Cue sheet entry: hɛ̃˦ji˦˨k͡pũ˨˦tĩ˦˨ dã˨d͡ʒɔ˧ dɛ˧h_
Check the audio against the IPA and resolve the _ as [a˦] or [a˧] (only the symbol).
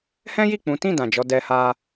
a˧